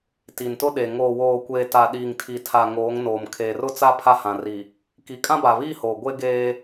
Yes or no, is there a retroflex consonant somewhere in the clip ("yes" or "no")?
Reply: no